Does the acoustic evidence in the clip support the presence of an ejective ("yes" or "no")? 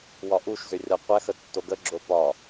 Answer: no